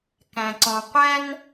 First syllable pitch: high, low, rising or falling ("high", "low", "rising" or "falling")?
low